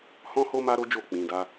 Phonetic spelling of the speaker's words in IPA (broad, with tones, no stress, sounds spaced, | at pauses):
h ɔ̃˦ h o˦ m a˦ ɾ o˦ d͡ʒ o˦˨ k͡p ĩ˧ d a˦